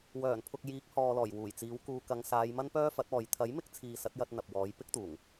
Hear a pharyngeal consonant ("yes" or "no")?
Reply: no